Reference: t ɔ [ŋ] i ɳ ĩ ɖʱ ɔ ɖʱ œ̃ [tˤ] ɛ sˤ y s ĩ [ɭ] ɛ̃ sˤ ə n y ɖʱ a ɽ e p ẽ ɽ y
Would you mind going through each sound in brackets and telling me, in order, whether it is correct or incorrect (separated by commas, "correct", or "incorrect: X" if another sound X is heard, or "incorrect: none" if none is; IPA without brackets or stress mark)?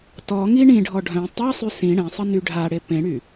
correct, correct, incorrect: ɽ